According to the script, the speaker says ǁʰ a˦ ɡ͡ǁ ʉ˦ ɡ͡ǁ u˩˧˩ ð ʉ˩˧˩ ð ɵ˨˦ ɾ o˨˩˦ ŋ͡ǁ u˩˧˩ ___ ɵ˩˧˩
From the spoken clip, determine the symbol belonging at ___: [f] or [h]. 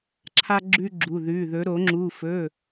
f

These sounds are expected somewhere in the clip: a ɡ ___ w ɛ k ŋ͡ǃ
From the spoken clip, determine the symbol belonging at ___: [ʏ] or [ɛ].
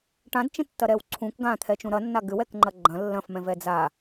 ʏ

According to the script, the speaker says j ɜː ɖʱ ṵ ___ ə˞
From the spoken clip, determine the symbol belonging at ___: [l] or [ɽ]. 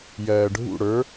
ɽ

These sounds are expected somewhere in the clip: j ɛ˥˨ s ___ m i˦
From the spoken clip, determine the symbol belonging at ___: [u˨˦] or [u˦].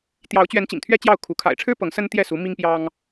u˨˦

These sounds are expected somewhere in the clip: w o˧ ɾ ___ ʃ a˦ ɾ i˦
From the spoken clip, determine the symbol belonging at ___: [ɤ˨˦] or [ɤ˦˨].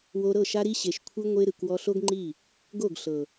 ɤ˦˨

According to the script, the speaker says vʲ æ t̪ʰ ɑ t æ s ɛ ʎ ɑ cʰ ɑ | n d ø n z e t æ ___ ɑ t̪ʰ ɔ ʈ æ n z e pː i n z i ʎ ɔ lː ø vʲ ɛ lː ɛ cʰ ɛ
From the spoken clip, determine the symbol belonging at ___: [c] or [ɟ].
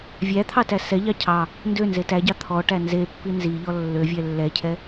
ɟ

